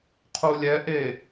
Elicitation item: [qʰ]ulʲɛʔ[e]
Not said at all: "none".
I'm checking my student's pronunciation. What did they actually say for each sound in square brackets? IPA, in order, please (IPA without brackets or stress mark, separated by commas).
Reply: qʰ, e